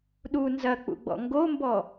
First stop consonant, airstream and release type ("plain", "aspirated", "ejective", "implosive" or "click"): implosive